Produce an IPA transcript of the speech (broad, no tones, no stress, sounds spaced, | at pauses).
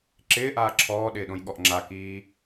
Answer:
ǁ ɪː ʔ aː ǁʰ ɔː ɗ ɪː ɗ õ j ɠ ɔ ʔ ŋ͡ǁ a k iː